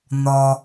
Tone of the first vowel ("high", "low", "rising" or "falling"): low